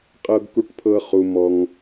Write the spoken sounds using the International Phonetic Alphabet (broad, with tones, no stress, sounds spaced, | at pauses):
qʼ ɤ˦ ɡ k u˦ ʈ pʰ ɤ˦ χ u˦ m ɔ˦ ŋ